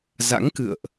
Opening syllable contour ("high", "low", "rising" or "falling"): rising